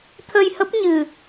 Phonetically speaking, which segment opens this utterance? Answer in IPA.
t̪ʰ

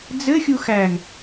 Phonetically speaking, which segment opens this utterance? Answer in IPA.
d͡z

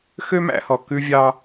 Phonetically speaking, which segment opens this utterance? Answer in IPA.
x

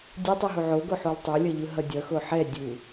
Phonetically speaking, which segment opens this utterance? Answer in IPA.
dʲ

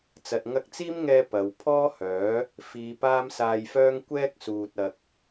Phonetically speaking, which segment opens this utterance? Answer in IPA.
t͡s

